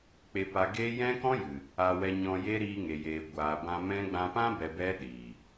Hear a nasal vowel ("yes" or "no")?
yes